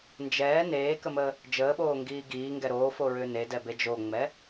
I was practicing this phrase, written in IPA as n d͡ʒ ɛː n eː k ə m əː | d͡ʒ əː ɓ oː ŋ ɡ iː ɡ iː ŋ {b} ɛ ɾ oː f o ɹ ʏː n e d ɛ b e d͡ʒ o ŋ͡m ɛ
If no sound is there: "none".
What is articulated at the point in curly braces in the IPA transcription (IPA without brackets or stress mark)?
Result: ɡ